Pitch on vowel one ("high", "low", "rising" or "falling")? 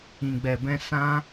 low